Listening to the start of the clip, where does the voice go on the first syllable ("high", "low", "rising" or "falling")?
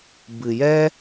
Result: low